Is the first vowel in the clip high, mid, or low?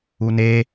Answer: high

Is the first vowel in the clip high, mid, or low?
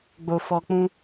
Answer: mid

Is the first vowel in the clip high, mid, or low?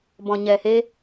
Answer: mid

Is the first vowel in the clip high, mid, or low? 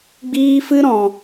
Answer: high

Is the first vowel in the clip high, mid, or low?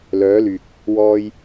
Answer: mid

